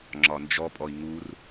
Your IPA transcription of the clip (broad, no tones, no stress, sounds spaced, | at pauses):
ŋ͡ǁ ɒ n d͡ʒ ɔ pʼ ɔ i̯ ŋ u r